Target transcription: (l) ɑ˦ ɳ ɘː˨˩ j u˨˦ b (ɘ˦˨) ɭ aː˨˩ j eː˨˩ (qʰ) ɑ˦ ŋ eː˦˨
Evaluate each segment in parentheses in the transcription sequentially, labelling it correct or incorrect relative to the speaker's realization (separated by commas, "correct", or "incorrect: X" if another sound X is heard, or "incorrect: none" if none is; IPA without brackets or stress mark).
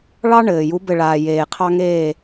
incorrect: ɭ, correct, correct